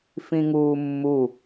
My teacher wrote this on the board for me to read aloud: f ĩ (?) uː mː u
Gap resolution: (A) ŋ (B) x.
A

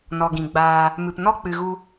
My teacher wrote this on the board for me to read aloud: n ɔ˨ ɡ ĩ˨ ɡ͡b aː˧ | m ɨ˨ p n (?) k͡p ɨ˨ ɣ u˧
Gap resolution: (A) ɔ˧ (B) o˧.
A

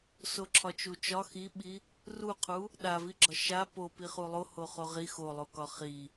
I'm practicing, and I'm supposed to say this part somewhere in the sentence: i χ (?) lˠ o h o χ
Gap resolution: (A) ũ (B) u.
B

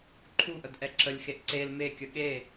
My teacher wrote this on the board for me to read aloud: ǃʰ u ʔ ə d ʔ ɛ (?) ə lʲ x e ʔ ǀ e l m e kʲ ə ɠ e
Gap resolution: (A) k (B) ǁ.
B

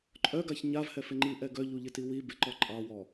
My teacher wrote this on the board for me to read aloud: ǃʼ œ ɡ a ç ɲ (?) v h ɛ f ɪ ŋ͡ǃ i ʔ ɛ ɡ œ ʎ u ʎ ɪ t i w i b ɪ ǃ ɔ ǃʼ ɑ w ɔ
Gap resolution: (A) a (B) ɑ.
A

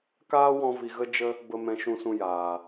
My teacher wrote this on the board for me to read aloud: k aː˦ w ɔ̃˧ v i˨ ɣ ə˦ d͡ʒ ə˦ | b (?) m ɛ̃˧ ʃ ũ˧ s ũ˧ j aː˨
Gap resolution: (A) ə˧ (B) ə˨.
B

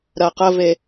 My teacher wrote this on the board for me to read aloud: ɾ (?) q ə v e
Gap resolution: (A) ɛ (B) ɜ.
B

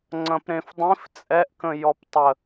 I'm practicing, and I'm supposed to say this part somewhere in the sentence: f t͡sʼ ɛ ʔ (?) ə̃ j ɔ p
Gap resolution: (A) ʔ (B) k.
B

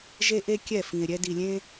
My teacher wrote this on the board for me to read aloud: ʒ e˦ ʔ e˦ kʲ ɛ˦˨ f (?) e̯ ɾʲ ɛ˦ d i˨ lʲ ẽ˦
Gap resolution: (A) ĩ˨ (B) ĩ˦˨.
A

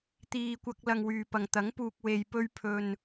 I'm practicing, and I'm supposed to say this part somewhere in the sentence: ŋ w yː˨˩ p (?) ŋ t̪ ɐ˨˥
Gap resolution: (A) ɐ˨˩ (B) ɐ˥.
A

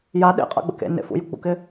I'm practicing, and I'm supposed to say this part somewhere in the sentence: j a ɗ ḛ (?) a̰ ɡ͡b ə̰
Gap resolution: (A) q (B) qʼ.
B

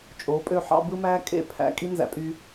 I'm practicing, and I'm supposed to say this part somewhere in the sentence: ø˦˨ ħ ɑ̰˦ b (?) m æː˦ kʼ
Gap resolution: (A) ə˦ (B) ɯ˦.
B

